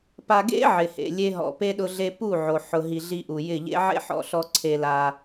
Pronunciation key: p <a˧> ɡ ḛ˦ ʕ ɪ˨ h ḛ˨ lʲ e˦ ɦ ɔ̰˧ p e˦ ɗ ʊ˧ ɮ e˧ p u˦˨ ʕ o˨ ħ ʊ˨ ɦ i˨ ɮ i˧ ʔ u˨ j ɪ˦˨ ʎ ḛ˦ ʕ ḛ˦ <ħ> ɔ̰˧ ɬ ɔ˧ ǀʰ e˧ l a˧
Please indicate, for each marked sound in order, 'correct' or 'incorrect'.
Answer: correct, correct

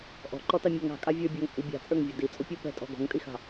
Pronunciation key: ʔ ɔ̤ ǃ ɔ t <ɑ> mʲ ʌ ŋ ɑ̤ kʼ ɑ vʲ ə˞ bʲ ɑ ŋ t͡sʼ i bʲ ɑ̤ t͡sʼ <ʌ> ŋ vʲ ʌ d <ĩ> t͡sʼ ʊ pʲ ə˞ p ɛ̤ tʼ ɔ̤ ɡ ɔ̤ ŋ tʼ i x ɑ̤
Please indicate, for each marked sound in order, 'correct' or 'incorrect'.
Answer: correct, incorrect, incorrect

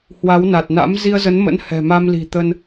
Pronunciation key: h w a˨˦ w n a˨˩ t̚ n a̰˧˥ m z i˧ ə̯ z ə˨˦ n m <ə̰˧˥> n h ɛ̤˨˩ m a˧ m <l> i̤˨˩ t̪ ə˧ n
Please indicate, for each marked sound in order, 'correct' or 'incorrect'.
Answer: correct, correct

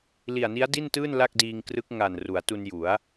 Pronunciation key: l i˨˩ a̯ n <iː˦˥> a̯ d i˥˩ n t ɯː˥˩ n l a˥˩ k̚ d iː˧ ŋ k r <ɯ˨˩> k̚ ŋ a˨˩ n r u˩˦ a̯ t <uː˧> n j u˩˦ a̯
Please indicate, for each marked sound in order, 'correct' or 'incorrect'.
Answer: incorrect, incorrect, incorrect

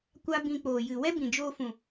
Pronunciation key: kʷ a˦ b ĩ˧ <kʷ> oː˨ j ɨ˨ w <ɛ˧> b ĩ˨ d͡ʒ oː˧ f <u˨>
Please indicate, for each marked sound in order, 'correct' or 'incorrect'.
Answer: incorrect, incorrect, incorrect

